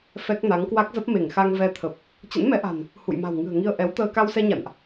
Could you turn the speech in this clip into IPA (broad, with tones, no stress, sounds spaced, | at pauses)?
f ɛ˦˥ k̚ n a˨˦ ŋ k w a˦˥ k̚ z ə˦˥ p̚ m e˧˩ ŋ x a˧ ŋ v ɛ˧ t̪ʰ ə˨˩ p̚ | t͡ɕ ə̰˧˥ n m ɛ˨˦ ʔ a̤˨˩ n | h ṵ˧˨ j m a̤˨˩ w ŋ ɨ̤˨˩ ə̯ ŋ i˧ ə̯ ʔ ɛ˨˦ w t̪ əː˧ k a˧ w s ɛ˧ ɲ a̰˧˨ n ʔ